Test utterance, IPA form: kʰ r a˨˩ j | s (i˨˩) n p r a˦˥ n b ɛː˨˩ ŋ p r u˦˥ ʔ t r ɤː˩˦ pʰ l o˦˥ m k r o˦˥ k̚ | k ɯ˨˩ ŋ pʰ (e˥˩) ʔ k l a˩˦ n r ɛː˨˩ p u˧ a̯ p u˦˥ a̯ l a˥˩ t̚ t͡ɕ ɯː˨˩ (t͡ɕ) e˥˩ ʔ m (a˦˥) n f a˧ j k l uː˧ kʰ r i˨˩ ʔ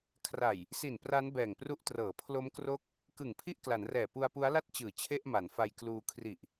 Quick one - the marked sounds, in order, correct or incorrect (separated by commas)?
correct, incorrect, incorrect, incorrect